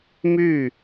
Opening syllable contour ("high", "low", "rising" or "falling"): falling